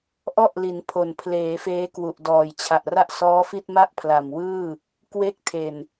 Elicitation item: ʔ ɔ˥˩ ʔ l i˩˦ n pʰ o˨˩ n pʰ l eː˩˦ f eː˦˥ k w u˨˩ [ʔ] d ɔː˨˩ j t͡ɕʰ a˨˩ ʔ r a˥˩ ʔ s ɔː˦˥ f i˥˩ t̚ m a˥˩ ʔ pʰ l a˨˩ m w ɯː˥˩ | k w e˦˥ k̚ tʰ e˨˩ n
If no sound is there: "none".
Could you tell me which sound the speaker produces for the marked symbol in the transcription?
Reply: ʔ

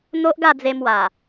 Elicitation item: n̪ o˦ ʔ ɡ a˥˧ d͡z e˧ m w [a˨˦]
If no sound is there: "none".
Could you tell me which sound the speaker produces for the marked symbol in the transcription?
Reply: a˨˩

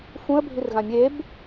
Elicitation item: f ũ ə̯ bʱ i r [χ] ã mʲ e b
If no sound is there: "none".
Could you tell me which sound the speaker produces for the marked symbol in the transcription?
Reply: ɣ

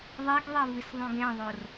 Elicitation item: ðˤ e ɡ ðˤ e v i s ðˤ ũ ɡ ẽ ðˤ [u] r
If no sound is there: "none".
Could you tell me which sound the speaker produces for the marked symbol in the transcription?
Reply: o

